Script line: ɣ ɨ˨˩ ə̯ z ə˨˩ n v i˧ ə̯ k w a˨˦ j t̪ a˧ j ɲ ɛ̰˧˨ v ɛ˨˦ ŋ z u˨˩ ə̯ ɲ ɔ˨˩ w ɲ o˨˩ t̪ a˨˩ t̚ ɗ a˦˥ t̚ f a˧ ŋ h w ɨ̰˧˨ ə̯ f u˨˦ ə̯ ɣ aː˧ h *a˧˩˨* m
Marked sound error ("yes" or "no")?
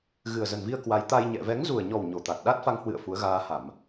no